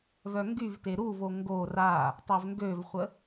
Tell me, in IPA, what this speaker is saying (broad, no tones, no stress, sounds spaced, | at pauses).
v œ ŋ ɡ y v t e ɾ u v o ŋ ɡ o r a | tˤ ø v ŋ ɡ ø v χʷ ə